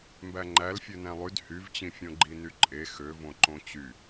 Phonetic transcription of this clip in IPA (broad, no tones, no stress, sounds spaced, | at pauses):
m b æ ŋ͡ǃ æ l fʲ ø n æ̃ lˠ y d h y v t͡ɕ ĩ fʲ õ ɡ͡ǃ i n y ǃʼ e x ø v õ ǃ õ t͡ɕ y